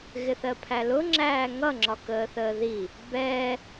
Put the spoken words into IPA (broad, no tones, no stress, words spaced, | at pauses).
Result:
ɣɪθɜpʰælʊ ŋ͡ǁæːŋʌ ŋ͡ǁɒkəːθəːði | bɛː